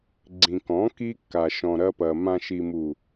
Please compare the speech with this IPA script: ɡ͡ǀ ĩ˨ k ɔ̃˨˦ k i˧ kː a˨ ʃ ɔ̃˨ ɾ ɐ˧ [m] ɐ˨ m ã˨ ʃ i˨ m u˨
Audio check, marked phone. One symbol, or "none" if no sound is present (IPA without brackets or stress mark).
p